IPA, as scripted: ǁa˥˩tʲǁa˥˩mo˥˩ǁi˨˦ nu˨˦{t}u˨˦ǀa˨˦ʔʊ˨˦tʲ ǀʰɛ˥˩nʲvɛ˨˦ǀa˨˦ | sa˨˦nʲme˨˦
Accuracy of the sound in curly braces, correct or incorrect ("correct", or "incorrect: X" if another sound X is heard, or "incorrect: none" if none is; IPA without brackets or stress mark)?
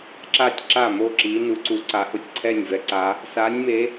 incorrect: ǀ